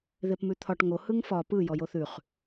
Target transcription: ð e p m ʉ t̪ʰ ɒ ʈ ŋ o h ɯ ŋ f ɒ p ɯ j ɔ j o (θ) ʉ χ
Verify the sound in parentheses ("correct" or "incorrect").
correct